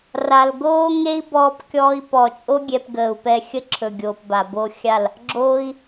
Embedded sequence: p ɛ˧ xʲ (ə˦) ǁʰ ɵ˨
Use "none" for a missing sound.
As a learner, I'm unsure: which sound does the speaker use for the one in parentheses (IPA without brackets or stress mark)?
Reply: ə˦